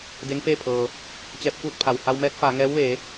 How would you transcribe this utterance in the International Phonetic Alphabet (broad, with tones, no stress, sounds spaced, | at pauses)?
d e˧˥ ŋ f eː˥˨ pʰ ɤː˩ | t͡ɕ ɛː˧ p̚ k uː˥˨ t̚ pʰ a˩ w h a˧ w m ɛː˧˥ t̚ f aː˩˧ ŋ ɛː˧˥ w ʋ eː˩˧